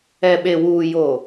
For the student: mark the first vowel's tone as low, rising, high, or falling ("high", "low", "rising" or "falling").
low